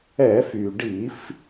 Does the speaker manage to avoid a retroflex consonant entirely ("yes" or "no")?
no